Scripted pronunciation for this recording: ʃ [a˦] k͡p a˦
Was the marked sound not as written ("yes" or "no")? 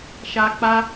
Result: no